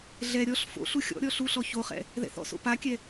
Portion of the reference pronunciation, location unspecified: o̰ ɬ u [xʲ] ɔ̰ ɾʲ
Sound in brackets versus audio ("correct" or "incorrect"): correct